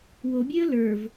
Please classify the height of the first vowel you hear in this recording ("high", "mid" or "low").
mid